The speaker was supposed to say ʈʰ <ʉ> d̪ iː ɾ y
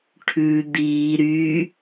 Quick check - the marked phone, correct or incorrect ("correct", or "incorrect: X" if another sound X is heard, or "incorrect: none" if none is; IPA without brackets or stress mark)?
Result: correct